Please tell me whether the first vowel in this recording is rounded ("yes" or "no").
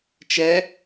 no